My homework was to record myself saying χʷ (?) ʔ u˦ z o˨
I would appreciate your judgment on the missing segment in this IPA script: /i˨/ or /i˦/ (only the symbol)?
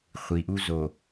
i˨